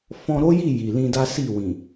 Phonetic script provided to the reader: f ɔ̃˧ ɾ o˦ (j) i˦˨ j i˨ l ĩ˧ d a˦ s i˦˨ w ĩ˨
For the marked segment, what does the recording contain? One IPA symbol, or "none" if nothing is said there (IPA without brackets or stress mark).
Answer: j